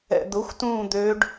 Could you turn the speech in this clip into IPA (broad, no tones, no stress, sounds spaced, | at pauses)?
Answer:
ɛ̰ d̪ ʊ xʷ t ũː d̪ ø ɖ